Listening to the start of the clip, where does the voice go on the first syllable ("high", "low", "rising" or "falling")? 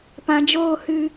low